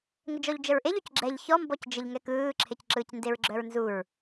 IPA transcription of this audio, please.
ŋ ə d͡ʒ ɔ ʎ d͡ʒ ə ɹ ʔ e ʎ o c ɡ͡ǁ ɛ ʎ ç ɔ m b ɔ c d͡ʒ ə ʎ ŋ ɛ k ɯː ǁʰ e c ǁ ɯː c n d e ɹ ɡ͡ǁ œ ɹ n z u ɹ

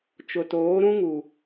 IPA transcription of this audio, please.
t͡ʃ ʊ˨ t oː˨˦ ɾ ũ˦ ŋ u˨

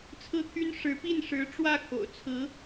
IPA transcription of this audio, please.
t͡sʰ ɹ̩˥ t̪ʰ y˥ n ʂ ɻ̩˧˥ p i˥˩ n ʂ ɻ̩˧˥ ʈ͡ʂ w ä˥˩ kʰ o̰˨˩ ʊ̯ t͡sʰ ɹ̩˧˥

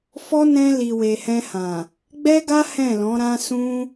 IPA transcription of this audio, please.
f ɔ˦ n ɛ̃˧ l i˨ w e˨ h ɛ̃˧ h ã˨ | ɡ͡b ɛ˦ ɡ a˦ h ɛ̃˦˨ l ɔ̃˨˦ ɾ ã˦ s ũ˦

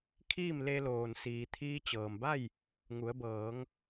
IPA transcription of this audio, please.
kʰ iː˥˨ m l e˧ l oː˩ n s iː˩ t̪ʰ iː˧ t͡ɕ ɤː˩ m b a˥˨ j | ŋ u˩˧ ə̯ b ɤː˩˧ ŋ

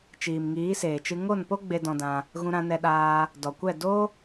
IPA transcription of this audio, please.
t͡ʃ iː˨ m ŋ iː˨˦ s eː˨ t͡ʃ ɨ˧ ŋ o˦˨ n p o˦ ɡ͡b e˧ d ɔ̃˧ d ã˧ | ɣ ũ˧ ɾ ã˧ n ɛ˧ ɗ aː˧ | d ɔ˨ kʷ ɛ˦˨ d o˦

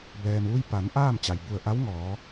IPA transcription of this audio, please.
b ɛː˩ m ʋ u˧ j p a˩˧ n ʔ aː˥˨ m t͡ɕ a˩ j b u˧˩ ə̯ ʔ a˧˥ w ŋ ɔː˩˧

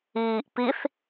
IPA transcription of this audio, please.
iː ʔ p i θ

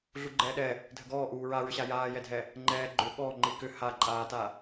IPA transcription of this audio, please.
ɮ u ɡ͡ǃ ɛː ɗ ɛ | dʱ ə ɡ ɔː ʔ uː ɹ a ɹ ʏ ɕ a j aː j ɛ dʱ ɛ | ŋ͡ǃ ɛː ɡ͡ǃ ʏ ɠ ɔ ŋ͡ǃ i k ʏ h a ǃʼ aː t a

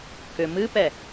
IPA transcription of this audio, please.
k ʏ m ɨ p ɛ

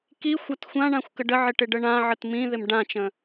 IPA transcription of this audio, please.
k i xʷ a t xʷ ã ɳ ã xʷ k ə ɖ ə ʕ ɪ ʈ ɪ ɖ ə ɳ ã ʕ ə t m ĩ ð ɪ m ɖ ã t͡ʃ ə̃

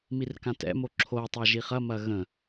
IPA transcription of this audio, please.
m i r k ã t ɛ̰ m o ǁʰ o tˤ a ʒ i χ ɐ m ɐ ɣ ə̃

